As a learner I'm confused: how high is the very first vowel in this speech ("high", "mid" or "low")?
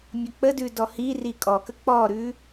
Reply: mid